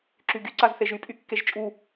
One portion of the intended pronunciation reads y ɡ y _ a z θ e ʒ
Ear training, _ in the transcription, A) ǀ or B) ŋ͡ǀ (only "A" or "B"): A